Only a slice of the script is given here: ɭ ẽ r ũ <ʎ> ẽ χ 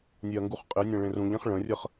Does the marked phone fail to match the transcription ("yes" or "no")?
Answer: no